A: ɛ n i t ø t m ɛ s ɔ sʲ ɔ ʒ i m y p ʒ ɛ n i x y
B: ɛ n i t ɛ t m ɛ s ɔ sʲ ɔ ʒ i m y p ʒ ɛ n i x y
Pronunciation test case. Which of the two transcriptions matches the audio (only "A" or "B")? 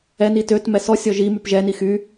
A